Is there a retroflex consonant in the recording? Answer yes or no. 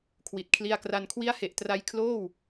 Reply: no